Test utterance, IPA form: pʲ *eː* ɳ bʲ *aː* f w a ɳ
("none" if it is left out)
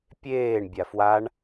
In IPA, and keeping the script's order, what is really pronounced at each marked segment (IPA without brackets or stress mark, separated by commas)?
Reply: eː, a